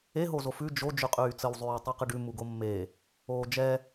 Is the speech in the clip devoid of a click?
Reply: yes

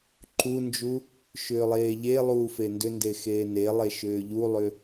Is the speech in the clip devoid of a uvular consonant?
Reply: yes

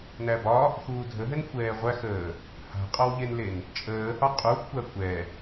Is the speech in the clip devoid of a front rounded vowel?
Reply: yes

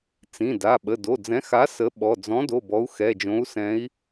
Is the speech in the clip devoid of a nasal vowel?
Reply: no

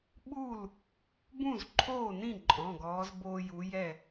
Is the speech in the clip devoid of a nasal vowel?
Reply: no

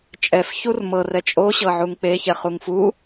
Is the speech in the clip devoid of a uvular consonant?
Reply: no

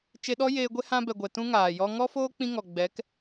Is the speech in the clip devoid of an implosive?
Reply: no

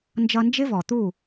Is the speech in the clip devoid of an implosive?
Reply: yes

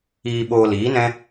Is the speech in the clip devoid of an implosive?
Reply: no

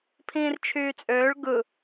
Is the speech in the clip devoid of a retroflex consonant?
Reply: no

